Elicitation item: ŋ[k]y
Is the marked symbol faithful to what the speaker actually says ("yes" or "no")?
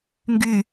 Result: no